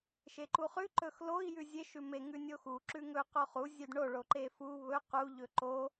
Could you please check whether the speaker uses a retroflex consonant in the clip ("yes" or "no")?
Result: yes